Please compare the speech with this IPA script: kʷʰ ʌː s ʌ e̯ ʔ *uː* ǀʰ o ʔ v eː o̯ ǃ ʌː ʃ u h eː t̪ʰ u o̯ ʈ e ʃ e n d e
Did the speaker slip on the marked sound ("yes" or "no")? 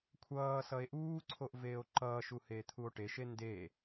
no